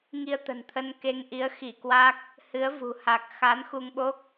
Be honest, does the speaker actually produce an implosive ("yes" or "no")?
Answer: yes